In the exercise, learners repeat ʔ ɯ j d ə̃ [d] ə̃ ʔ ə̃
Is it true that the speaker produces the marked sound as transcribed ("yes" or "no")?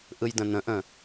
no